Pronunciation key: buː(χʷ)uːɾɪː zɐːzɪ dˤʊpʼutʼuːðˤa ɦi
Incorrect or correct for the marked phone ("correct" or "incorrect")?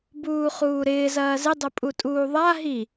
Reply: incorrect